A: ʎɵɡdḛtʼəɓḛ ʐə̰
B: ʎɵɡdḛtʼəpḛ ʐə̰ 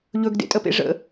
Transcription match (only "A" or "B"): B